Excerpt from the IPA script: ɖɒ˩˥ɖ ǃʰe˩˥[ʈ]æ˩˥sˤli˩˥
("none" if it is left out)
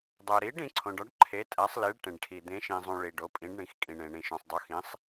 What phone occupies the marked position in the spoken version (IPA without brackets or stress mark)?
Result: tʼ